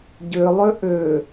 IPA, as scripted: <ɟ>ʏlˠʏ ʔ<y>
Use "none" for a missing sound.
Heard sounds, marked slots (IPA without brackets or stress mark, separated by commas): ɟ, ʏ